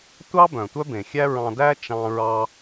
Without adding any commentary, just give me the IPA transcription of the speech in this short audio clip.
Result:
tʷ ɑ˥ b œ̃˩ tʷ œ˥ b ẽ˩ xʲ æ˥ ɹ ɑ̃˧ d æ˥ t͡ʃ ɑ̃˧ ɹ ɑ˧

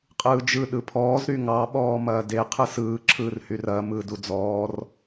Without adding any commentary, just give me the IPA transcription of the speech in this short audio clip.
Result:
qʼ ɯː d͡ʒ ɯ ɗ ɯ pʰ ɔː z ɾ y ŋ ɑ ɓ ɔː m ɐː d e qʰ ɯ s ɯː ǁʰ ɯː r h y r ɐː m ɯː d u d͡z ɔː r

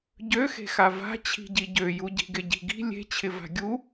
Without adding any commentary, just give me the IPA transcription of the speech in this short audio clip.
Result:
ɟ ø x e̤ x a v a̤ t͡ɕʰ i̤ ɟ i ɟ ø j u ɟ i̤ ɡ ɪ ɟ i̤ ɡ i̤ lʲ e̤ t͡ɕʰ ɪ v a̤ ɡʲ u

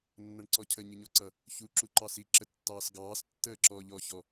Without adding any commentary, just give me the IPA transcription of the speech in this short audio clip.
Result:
nː ʌ ɳ ǀ ɔ cʰ ə ɲ ɪ ɲ ɔ ǀ ʌ | ç u ǁ u ǃ ɑ s i ǁ ə tː ɑː s ɡ ɑː s tː əː ǁ ɔ ʎ ɔ ç ɔ

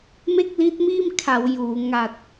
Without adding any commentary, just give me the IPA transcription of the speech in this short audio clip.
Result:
m e˥˩ k̚ l i˦˥ t̚ m iː˥˩ m kʰ a˩˦ w j uː˩˦ ŋ a˨˩ t̚

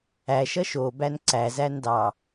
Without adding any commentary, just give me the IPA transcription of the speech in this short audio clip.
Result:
æ ʃ ʌ ʃ o b æ n ǀ æ z æ n d ɑ

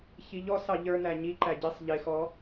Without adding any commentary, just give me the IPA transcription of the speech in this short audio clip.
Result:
ç i ʎ ɔ s ɑ ʎ ə˞ n æ ɲ i ǃ æ ɟ i sˤ ʎ ɪ x ɔ

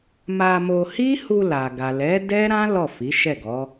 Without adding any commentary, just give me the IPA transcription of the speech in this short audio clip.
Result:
m a˧ m o˧ h i˦ h u˧ l a˨ ɡ a˨ l ɛ˨˦ d ɛ˦ ɾ ã˦ l ɔ˦˨ f i˨˦ ʃ ɛ˦˨ ɡ ɔ˨˦

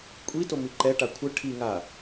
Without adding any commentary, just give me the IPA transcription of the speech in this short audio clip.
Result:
kʷʼ i t o m i ǃ ɛ ʈ a kʷʰ ə ʈʰ i ŋ a

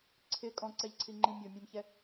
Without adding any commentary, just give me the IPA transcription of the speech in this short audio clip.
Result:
ǀʰ ɪ kʼ ɔ̃ ǀ ɛ ʎ ǀʰ i ŋ͡ǃ ĩ mʲ o mʲ ɛ̃ m ç ɛ

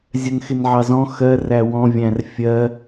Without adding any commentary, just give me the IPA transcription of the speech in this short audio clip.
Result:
zʲ ɜ n x ɪ n ʕ ɑ z ɔ̃ x ɜ r æ w ɔ̃ vʲ æ̃ r fʲ ɜ

